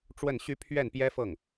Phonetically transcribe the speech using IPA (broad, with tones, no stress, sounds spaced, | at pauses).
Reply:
ʈ͡ʂ w ə˥˩ n ɕ y˥ pʰ ɥ ɛ˥˩ n p j ɛ˥ f ɤ˥˩ ŋ